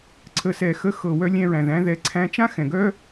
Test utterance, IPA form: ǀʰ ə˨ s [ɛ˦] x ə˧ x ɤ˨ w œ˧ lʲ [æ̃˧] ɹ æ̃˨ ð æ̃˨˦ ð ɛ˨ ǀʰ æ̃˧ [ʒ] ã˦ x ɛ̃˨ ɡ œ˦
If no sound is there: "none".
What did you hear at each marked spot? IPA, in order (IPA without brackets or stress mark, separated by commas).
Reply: ɛ˨, æ̃˧, t͡ʃ